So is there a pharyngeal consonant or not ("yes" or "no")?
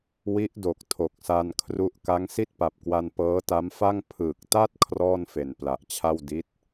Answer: no